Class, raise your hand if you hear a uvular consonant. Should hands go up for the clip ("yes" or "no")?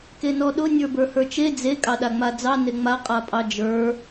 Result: yes